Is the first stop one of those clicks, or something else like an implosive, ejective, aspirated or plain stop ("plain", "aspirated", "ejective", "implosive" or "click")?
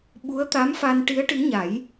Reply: implosive